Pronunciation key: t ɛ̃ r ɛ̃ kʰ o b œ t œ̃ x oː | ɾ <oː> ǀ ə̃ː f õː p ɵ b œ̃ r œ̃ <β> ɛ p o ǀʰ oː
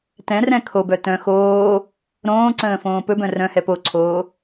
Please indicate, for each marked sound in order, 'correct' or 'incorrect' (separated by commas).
incorrect, incorrect